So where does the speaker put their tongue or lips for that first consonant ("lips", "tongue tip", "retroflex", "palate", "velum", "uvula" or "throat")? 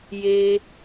palate